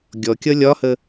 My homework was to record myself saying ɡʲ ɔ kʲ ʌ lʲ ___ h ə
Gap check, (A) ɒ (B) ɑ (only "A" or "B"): A